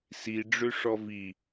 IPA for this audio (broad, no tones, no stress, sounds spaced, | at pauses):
s i ɖ͡ʐ ø ʂ ɔ v i